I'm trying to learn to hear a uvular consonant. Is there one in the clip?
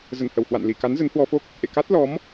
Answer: no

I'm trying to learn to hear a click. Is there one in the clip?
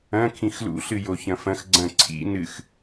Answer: yes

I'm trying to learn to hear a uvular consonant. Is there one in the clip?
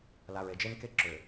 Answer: no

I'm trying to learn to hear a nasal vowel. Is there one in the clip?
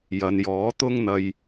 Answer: no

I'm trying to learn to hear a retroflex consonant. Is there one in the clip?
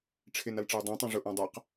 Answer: yes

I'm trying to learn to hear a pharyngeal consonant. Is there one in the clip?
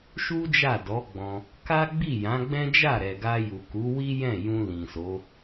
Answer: no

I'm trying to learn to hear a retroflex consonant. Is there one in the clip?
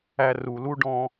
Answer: yes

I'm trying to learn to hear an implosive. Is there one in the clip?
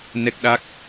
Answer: yes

